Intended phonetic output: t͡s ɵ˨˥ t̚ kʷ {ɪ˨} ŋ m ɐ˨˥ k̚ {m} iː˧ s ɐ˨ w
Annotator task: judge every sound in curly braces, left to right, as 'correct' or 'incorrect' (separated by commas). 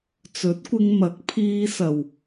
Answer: incorrect, incorrect